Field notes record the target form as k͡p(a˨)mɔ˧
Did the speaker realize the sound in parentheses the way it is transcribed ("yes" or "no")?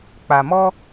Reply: yes